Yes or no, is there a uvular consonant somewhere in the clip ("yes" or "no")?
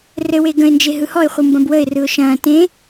yes